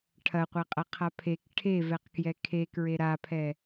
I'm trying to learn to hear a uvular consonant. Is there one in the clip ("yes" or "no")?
yes